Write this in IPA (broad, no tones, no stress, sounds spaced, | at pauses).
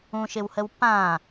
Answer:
ũ ʃ ɪ w h ə w p ã